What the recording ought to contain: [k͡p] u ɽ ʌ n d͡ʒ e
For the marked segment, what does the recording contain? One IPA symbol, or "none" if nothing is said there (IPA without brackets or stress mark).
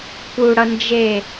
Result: k